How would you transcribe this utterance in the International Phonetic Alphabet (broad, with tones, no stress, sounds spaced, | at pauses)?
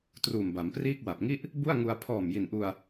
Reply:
t r uː˨˩ m b a˩˦ m p r iː˥˩ k̚ w a˨˩ p̚ ŋ i˥˩ ʔ | b u˥˩ a̯ ŋ u˧ a̯ pʰ ɔː˨˩ m j i˨˩ n ʔ u˧ a̯